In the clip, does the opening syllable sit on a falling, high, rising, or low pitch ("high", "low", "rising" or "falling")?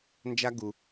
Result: high